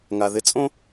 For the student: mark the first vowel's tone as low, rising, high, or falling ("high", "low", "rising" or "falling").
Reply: low